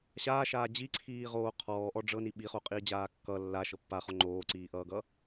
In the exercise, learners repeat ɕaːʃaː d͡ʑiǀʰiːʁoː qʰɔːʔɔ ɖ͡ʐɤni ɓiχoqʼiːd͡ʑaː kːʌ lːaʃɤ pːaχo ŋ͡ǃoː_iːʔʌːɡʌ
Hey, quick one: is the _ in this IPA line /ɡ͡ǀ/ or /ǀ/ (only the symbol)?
ǀ